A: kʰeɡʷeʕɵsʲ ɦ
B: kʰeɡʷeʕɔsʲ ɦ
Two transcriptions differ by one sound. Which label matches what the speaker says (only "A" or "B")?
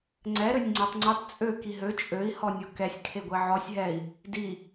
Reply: B